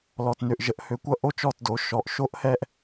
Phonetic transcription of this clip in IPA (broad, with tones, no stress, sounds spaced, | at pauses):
l ɔ˨ t n ø˨ ʔ ʒ ə˨ ʔ h ø˨ kʷ ʌ˧ ʔ o˦ t͡ʃ ɔ˦˨ t d o˨˦ ʃ ɔ˨ ʔ ʃ o˦ ʔ h ɛ˦ ʔ